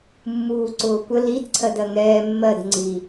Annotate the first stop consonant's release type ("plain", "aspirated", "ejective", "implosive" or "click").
click